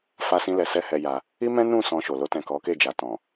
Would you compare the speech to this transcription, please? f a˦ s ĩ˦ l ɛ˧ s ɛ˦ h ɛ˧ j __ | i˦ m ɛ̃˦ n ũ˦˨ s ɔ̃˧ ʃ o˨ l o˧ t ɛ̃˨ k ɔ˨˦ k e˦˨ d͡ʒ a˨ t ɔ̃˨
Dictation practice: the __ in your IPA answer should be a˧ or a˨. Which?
a˧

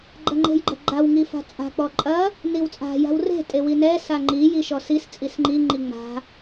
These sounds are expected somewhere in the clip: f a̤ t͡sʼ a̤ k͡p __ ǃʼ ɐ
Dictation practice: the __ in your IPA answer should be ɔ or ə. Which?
ɔ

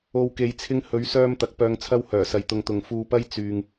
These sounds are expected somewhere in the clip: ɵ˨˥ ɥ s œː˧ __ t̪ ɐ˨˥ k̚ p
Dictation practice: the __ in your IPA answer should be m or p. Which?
m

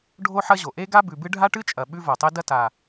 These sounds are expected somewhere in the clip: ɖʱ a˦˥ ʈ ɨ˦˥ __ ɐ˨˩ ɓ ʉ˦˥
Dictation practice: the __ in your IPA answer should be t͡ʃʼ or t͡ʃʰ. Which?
t͡ʃʼ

